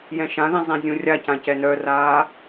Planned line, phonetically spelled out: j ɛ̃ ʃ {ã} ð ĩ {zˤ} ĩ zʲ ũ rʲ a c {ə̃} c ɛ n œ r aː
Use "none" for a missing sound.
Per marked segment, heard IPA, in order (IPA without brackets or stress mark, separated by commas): ã, zˤ, ã